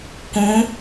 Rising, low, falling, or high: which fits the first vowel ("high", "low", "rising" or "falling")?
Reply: rising